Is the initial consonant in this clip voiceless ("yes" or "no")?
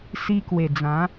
yes